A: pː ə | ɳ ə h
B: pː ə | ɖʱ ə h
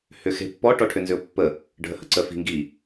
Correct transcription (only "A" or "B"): B